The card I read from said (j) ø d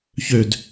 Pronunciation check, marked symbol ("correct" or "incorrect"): incorrect